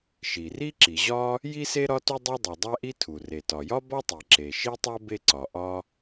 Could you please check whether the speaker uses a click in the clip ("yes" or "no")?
yes